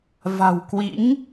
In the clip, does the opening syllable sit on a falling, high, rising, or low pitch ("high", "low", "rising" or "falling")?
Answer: low